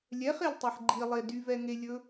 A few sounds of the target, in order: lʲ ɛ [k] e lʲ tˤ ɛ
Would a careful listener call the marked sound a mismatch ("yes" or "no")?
yes